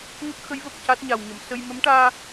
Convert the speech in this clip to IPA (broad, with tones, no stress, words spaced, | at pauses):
ŋə˦˥k̚xə˧˥jvə˨˩k̚ ca˦˥t̚ɲa˨˩wɲə˨˩˨msə˧j mə˧˥mʈaː˧